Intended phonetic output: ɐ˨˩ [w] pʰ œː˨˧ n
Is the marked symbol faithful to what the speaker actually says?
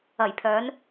no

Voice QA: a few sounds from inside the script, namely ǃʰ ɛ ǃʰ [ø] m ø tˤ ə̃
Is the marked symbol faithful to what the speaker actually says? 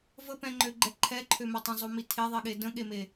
yes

